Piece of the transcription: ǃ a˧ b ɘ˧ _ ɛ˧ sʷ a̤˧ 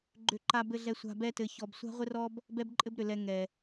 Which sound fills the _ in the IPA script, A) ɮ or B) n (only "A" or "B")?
A